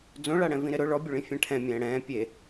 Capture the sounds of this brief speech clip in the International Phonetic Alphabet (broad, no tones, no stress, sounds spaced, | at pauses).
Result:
d͡z õ ɭ a ɽ ɛ̃ v ĩ ɾ ɪ ɾ ʊ ɭ ɔ bʲ ʊ ɭ ĩ fʲ ɛ̃ ʈʰ ɛ̃ mʲ ɛ̃ː ɽ ɛ̃ː pʲ e